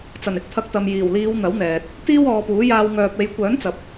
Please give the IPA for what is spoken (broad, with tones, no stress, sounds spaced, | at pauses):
t͡s ɐ˨˩ n ɪ˨ k̚ t̪ʰ ɐ˧ k̚ t̪ ɐ˨ m j iː˨˩ w l iː˨˧ w n̪ ɐ˨˥ w n̪ ɛː˨ t̚ | t̪ iː˥ w ɔː˨˧ p uː˨˥ j aː˧ w ŋ œː˨ p̚ e˨˧ j kʷ œː˨˥ n t͡s ɐ˨ p̚